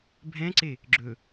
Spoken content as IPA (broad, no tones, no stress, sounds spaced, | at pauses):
bʱ ɛ̃ ǀ e | ɡ͡ǁ ɵ